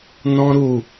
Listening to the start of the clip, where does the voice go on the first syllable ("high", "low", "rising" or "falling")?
high